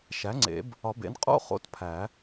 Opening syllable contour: rising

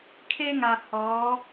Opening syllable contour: high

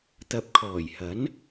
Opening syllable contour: rising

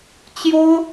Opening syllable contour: high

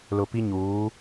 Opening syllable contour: low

